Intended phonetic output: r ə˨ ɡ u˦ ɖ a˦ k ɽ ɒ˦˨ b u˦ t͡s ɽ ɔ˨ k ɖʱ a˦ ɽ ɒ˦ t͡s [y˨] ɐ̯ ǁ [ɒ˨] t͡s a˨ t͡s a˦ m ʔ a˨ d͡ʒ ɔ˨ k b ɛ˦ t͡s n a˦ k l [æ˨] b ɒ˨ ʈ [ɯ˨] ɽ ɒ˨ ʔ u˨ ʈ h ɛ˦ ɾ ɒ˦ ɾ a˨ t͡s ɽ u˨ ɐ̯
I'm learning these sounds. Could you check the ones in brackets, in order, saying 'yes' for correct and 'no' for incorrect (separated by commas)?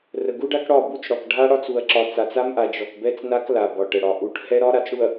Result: no, yes, no, no